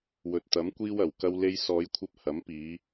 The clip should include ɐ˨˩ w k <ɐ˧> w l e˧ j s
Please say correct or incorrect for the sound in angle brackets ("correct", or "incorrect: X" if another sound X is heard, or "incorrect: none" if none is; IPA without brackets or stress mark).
correct